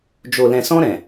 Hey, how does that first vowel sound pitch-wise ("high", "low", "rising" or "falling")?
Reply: low